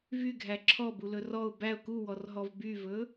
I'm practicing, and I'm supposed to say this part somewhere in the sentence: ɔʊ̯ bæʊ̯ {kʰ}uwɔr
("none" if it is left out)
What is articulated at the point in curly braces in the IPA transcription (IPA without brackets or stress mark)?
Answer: k